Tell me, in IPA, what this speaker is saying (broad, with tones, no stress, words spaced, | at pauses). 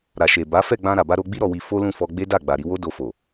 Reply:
ɾa˨ʃe˨ ba˨˦fɛ˦˨ɡ͡bã˧ ɾa˨ba˧ ɾo˧ɡ͡bi˦ ɾɔ˧wi˧ fo˦lũ˦˨fɔ˧ ɡ͡be˦da˦˨ ɡ͡ba˨ɾi˧wo˦ do˧fo˨